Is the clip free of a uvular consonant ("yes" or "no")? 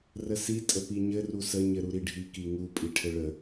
yes